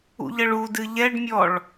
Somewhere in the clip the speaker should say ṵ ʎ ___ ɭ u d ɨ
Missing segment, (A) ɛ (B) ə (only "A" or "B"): B